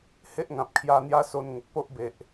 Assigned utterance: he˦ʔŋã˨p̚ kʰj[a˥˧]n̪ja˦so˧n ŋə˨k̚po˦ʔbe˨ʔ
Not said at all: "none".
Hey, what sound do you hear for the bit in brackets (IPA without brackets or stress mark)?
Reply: a˧